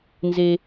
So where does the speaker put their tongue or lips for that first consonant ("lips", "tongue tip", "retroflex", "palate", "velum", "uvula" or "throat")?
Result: tongue tip